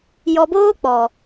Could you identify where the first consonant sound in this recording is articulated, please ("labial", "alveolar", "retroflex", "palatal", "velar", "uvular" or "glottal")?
palatal